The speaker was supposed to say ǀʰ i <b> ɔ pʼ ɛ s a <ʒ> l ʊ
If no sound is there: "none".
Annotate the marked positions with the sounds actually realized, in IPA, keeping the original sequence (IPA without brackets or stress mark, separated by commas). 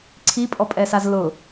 pʼ, z